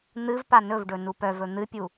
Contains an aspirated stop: no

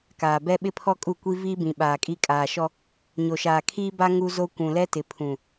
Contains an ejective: yes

